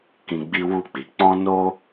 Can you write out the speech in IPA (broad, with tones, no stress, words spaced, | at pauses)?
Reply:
kĩ˧ɡ͡bi˦wu˦˨k͡pi˨˦ k͡pɔ̃˦ no˦